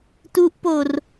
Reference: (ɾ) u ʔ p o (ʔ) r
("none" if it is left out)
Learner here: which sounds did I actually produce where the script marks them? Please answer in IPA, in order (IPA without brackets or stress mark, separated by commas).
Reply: t, none